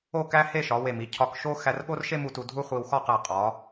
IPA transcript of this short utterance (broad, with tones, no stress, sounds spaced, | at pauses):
o˥˧ k æ˥ h e˥˧ ʃ ɒ˩˧ w e˧˩ m i˩˧ cʰ ɒ˧ k ʃ o˥ x æ˧ r ɠ o˥ r ʃ e˥ m u˧ t u˧ dʱ u˥ χʷ i˧ w x ɒ˥˧ q æ˧˩ qʼ ɒ˩˧